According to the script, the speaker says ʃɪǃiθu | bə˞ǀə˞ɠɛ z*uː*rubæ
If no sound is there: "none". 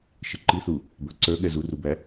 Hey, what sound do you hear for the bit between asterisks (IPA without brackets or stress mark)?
u